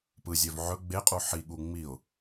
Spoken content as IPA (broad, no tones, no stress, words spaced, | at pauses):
pɯzʲœv ʕɵ ɡ͡beqʼu ħiɠu ŋ͡miʊ̯